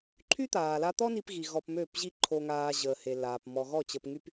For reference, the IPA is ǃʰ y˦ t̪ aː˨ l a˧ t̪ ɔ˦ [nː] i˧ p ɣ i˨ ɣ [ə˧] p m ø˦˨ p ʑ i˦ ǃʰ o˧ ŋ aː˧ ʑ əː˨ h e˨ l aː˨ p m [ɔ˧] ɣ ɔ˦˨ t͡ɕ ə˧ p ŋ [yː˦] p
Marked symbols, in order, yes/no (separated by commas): no, no, yes, no